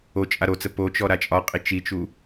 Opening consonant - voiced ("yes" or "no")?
no